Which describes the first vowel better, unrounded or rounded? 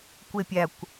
unrounded